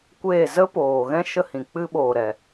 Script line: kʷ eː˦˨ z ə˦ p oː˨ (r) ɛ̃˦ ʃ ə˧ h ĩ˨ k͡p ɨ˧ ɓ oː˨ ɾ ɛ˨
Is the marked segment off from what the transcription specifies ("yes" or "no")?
yes